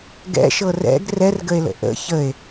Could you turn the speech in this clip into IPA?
ɡ ɛ̰ ʃ ɤ r ɛ̰ ɡ r ɛ r ɡ ə e̯ l ə̰ ʔ ə̰ ç ə e̯

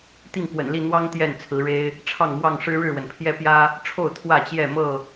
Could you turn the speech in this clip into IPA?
t̪ i˥˨ ŋ k w ə̰˨˩ n l i˥˨ n̪ w ɑ˦ ŋ t̪ j ɛ˥˨ n t͡sʰ ɹ̩˨˦ ɻ e˦ ɪ̯ | ʈ͡ʂʰ ɑ˥˨ ŋ m w ɑ˥˨ ŋ ʂ ɻ̩˦ ɻ ɻ̩˥˨ w ə˩ n pʰ j ɛ˦ p j ä˦ | ʈ͡ʂʰ o˥˨ ʊ̯ t̪ʰ w ä˥˨ t͡ɕ j ɛ˥˨ m ɤ˥˨

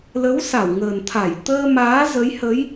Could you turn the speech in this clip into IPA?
l ə˨˦ w s a˧˩ w ŋ əː˨˩ n t̪ʰ a˧˩ j t̪ əː˧ m aː˨˦ z ə˨˦ j h ə˨˦ j

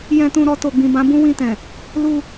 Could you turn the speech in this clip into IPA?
j ɛ̃˧ t ũ˧ ɾ ɔ˧ t o˨ ɡ͡b ĩ˨ b ã˨˦ b ũ˦ w ĩ˧ t ɛ̃˨ | l u˧

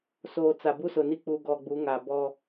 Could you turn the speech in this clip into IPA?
s oː˨ t͡s a˨ b u˦ s ʊ˨ n i˦ k͡p u˨ ɡ ɔ˨ ɡ͡b u˨˦ ŋ a˨ b ɔ˦

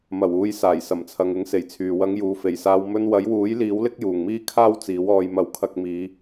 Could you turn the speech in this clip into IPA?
m ɐ˨˩ w uː˨˧ j s aː˨˩ j s ɐ˨˩ m t͡sʰ ɐ˨ ŋ ɪ˨˥ ŋ s e˨˩ j t͡sʰ yː˨ w ɐ˨˧ ŋ j uː˨ f e˨˩ j s aː˧ w m ɵ˧ n w ɐ˨˥ j w uː˨˥ j l iː˨˥ w l ɪ˥ k̚ j uː˨ ŋ m iː˥ kʰ aː˥ w t͡s iː˨˥ w ɔː˧ j m ɐ˨˥ w kʰ ɐ˧ k̚ m iː˨˧

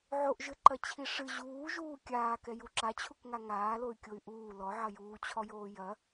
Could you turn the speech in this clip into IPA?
ʕ o ʔ ʒ ɘ ǃ ɐ t͡ɕʰ i ʂ ɨ ʑ uː ʒ uː kʲ aː k ɛ j u ǁ a t͡ɕʰ u k ŋ a ŋ aː l o y̯ kʲ o y̯ ʔ uː l ɔ ʕ ɐ j uː t͡ɕʰ ɔ j oː j ɐ

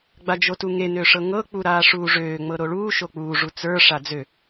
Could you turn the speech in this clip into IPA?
ɡ͡b a d͡ʒ o t u ŋ e n ø ʂ ɤ ŋ ɤ k͡p u ɾ aː ʂ uː ʐ øː ŋ͡m ɤ ɾ o ɭ uː ʃ o k͡p uː ʐ u t͡s ə˞ ʂ a d͡z ø

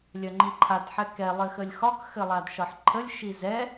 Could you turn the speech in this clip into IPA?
lʲ œ ŋ͡ǃ i ǃʰ a d ħ ɛ k ɛ lˠ ɘ x ə lʲ x ɒ k x ɘ lˠ a d ʃ ɒ ħ ǃʰ ə lʲ ʃ i z ɛ

